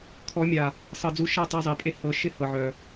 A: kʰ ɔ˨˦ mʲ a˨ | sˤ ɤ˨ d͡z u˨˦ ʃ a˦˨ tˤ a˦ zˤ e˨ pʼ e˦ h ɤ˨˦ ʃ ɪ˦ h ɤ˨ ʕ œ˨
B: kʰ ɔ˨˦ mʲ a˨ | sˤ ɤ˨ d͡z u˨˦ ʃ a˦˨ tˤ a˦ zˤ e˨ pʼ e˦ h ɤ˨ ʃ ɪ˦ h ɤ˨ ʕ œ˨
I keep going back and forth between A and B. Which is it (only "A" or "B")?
A